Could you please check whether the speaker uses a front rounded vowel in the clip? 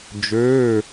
yes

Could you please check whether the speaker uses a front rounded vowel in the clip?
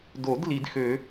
yes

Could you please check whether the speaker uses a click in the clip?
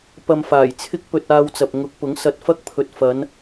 no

